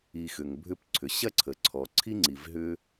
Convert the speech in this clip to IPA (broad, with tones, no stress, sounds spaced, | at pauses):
i˨ x ʏ˩ ŋ bʱ ʏ˦ p ǀʰ ʏ˩ ɕ ɐ˥ ǀʰ ə˩ ǀʰ ɔ˩ ǀʰ i˥ ŋ͡ǀ i˩ v ɦ ʏ˦